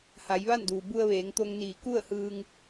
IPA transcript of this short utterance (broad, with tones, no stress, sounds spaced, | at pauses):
h a˩˧ j ʋ a˥˨ n d uː˩ b u˧ ə̯ ʋ eː˩˧ ŋ t̪ o˧ ŋ n iː˧˩ k u˥˨ ə̯ h ɯː˧ ŋ